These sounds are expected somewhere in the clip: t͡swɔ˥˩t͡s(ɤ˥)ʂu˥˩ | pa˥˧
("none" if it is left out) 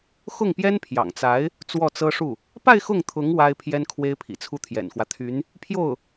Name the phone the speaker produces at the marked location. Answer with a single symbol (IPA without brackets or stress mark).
ɤ˥